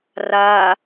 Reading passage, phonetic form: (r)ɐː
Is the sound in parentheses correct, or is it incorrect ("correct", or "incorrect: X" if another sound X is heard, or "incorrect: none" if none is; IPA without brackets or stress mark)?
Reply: correct